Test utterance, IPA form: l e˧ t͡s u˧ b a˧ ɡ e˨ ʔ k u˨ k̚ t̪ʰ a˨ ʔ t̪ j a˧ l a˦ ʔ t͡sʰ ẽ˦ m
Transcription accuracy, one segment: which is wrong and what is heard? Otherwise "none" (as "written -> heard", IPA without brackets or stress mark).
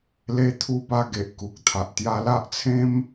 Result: t͡s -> t̪ʰ